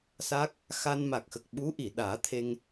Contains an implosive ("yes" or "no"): yes